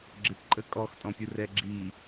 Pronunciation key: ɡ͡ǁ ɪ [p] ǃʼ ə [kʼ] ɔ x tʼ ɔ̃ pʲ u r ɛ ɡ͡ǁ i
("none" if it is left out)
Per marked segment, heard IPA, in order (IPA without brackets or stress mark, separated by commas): p, kʼ